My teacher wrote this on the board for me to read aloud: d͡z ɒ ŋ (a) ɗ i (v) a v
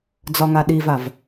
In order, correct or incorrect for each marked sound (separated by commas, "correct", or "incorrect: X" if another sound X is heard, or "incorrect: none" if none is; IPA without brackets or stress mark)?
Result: correct, correct